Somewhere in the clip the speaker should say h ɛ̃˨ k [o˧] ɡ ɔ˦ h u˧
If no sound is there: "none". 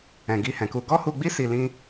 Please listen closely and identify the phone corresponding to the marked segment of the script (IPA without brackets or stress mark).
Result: u˧